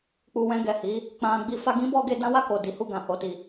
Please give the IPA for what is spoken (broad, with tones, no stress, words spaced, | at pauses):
k͡pu˧wɛ̃˧ɡɛ˨hi˨˦ | k͡pã˧ɡ͡bi˦ fa˧ɡĩ˦bɔ˧ɡe˧ dã˦wa˦˨ko˨ di˨˦hu˦˨ɡã˨ ho˨ti˨